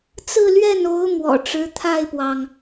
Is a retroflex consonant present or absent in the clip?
present